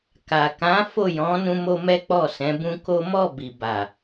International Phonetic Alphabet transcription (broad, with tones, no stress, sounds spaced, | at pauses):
k a˨ k ã˨˦ f o˦˨ j ɔ̃˨˦ n ũ˧ m o˧ m ɛ˦ k͡p ɔ˦˨ s ɛ̃˨˦ b ũ˦ k o˦ m ɔ˦˨ b i˨ b a˨